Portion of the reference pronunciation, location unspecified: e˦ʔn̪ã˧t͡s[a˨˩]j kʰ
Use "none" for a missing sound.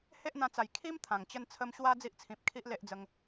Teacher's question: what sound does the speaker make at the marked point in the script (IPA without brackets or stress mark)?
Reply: a˨˩